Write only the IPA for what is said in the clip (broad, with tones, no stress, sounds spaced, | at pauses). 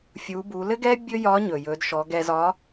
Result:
fʲ u˩˧ b u˩˧ l ɘ˥ ɡ ɛ˥ bʲ ɵ˥ j ɒ˧˥ ɲ ɵ˩ j ɵ˩˧ d ʃ ɔ˩˧ ɡ ɛ˧ z ɒ˧˥